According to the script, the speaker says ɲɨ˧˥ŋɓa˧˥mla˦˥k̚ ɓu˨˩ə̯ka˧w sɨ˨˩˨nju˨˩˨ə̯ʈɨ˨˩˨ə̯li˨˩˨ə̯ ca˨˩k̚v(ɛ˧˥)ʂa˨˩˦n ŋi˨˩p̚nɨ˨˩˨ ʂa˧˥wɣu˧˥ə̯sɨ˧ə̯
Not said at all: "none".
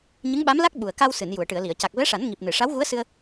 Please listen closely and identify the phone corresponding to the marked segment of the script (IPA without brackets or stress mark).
ɛ˧˥